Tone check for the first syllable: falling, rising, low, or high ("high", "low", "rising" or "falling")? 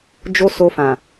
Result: high